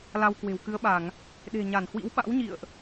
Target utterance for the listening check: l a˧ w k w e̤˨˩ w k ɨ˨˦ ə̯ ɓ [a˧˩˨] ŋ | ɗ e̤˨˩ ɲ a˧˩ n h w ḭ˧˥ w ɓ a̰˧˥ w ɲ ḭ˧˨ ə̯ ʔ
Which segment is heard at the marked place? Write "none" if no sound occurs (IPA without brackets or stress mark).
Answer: a˧˩˨